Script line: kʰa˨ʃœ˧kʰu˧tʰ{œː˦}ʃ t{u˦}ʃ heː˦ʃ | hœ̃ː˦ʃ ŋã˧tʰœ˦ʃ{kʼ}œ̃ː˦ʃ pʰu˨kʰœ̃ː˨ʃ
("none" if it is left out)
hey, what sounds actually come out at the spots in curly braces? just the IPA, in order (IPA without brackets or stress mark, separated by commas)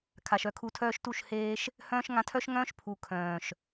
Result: œː˦, u˦˨, ŋ